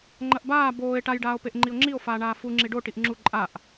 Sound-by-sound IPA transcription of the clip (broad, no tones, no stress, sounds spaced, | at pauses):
ŋ͡ǃ ɐ ʔ b aː b oː e̯ ʈ a j ɖ aː o̯ p e ʔ ŋ͡ǃ i o̯ ŋ͡ǁ i o̯ f aː ɳ aː f u ŋ͡ǁ i ɖ o ʈ i ʔ ŋ͡ǁ u ǃʼ a ʔ